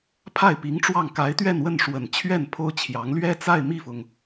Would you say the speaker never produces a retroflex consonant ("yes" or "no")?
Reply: no